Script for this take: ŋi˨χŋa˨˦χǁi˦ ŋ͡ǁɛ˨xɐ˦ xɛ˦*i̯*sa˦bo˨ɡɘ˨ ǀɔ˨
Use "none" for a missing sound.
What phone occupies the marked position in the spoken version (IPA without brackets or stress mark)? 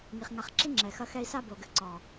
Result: i̯